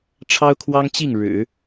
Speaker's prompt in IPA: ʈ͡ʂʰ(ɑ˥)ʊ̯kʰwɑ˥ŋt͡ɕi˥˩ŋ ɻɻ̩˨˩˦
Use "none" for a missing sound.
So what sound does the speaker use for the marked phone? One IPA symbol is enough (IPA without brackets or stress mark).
ɑ˥